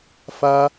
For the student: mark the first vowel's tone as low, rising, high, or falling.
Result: high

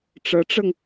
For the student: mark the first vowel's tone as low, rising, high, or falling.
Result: rising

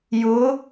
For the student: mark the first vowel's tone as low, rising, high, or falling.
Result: rising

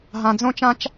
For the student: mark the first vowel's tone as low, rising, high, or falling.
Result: low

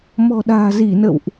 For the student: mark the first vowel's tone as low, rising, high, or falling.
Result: low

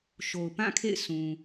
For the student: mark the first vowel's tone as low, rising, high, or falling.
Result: low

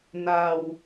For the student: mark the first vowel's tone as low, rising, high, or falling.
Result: low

